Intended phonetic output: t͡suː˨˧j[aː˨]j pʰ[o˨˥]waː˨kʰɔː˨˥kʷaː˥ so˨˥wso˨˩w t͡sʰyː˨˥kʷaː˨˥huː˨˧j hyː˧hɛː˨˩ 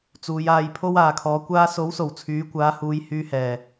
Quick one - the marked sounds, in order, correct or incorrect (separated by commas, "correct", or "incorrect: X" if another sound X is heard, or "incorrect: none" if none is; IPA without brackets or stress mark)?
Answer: incorrect: aː˧, incorrect: o˥